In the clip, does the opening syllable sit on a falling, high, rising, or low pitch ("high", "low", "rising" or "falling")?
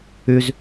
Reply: high